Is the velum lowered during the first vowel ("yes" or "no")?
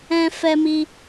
yes